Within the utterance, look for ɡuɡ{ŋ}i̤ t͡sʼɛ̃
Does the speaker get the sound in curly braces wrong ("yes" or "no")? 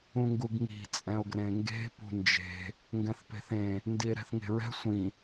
no